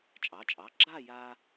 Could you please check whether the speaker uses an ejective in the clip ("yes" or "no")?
yes